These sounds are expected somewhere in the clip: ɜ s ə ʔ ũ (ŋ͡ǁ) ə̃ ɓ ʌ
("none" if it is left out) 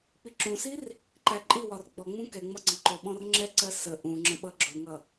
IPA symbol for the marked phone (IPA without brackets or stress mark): ŋ͡ǁ